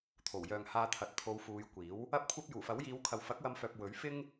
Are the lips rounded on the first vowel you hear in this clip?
yes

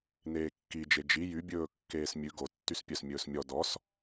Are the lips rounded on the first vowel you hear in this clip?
no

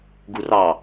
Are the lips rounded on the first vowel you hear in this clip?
yes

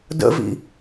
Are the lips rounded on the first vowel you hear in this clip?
no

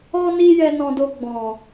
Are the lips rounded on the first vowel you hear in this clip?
yes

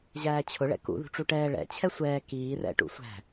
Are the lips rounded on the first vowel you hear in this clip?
no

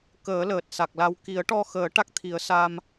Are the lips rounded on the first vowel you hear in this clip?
no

